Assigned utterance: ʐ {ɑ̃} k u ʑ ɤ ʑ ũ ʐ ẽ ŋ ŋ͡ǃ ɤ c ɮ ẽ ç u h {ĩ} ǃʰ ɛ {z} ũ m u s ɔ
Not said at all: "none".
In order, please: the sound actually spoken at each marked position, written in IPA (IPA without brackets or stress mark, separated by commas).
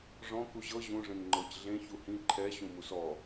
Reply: ɔ̃, ĩ, ɕ